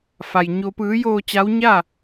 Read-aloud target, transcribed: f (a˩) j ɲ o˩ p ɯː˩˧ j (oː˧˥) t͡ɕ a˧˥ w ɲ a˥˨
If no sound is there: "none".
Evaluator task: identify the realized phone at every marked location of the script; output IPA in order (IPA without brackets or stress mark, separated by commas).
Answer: a˩, oː˧˩